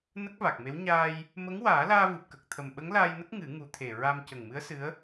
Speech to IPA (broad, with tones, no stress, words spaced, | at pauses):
nə˦˥k̚va˨˩k̚me˧˥w ɲaː˧j | mə˧˥ŋwaː˨˩˦laː˧ vɨ˨˩p̚kə˨˩k̚t̪ʰə˨˩m ɓə˧˥ŋlaː˧jnə˦˥k̚ ŋɨ˨˩˦ ŋu˨˩˦t̪ʰe˨˩ ɹa˧m cə˨˩ŋmɨ˧˥ə̯ sɨ˧˥ə̯